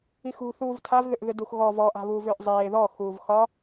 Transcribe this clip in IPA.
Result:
i x ṳ θ uː v tʰ a v ð ʏ ʔ ð ʏ d u x ɣ ɔ v ɔ ʔ a̤ β uː v ʏː ʔ zˤ eː ð ɔ x uː v x ɒ

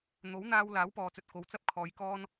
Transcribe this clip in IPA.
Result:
n̪ o˨˥ w n̪ aː˧ w l aː˨˥ w p ɔː˨ t͡s ɵ˨ t̚ k o˨ w t͡s ɐ˥ p̚ kʰ ɔː˨˧ j k ɔː˥ n

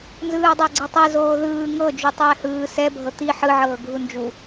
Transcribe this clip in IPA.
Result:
n z ɯː dˤ a ɡ͡ǀ i tˤ ɛ z oː ð ɯː ŋ ɤ d͡ʒ u tˤ ɛː h ɯː s ɛ bʱ ɤ t̪ i ħ ɯ ʕ ɤː ɡʱ u n d͡ʒ u

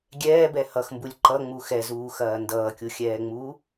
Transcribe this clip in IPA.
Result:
ɡʲ ɛː b ɛ h ʌ x m b u lʲ ǃ ʌ ŋ͡m u x ɛ z uː x ɐː n d ʌː kʲ u xʲ ɛː ŋ͡m uː

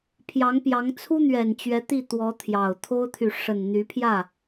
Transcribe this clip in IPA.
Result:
pʰ j ɑ˧˥ ŋ p j ɑ˧˥ ŋ t͡sʰ u˥ n̪ ɥ ɛ˨˩ n t͡ɕ ɥ ɛ˧˥ t̪ i˥˩ t̪ w ɔ˧˥ t̪ʰ j ɑ˨˩ ʊ̯ t̪ʰ o˥ ʊ̯ t̪ʰ y˨ ʂ ə˨˩ n n̪ y˧˥ pʰ j ä˥˩

